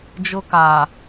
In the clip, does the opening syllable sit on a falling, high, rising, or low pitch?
high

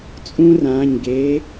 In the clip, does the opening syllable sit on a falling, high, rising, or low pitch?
high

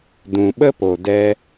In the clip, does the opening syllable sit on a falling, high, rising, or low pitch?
low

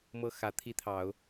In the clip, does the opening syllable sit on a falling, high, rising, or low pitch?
high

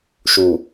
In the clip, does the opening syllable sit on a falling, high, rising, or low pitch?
low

